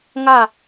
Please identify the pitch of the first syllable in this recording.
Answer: falling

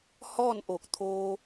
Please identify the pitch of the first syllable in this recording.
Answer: falling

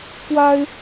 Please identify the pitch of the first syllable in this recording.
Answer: high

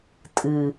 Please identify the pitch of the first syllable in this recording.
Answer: low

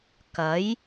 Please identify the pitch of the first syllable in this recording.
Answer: rising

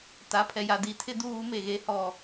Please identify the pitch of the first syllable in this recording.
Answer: rising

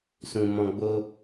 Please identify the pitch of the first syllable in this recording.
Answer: low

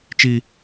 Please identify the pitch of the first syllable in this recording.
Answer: high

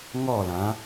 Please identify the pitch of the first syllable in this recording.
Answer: falling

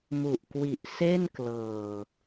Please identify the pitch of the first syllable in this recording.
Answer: low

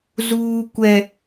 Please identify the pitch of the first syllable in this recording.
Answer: high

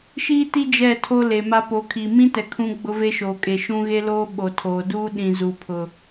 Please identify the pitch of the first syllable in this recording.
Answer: high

